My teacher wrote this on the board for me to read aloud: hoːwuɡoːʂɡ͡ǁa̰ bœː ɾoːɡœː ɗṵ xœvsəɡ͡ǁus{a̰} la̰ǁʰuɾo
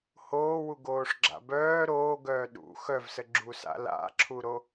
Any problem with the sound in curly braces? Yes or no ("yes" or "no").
no